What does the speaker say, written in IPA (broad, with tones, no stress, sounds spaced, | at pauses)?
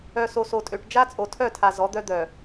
œ˨ s o˨ s o˨ tʼ ø˨ ʈ d͡ʒ a˦ t͡sʼ o˨ tʰ œ˦˨ tʰ a˨ z ɔ˨˦ d̪ œ˦ d̪ œ˨